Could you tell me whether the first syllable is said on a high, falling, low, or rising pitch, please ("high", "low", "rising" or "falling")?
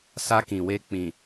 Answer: high